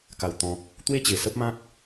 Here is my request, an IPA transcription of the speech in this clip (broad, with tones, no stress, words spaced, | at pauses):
ka˨˩wt̪ɔ̃˨k̚ | t̪we˥˧t͡ɕe˨˩sə˦p̚mã˦k̚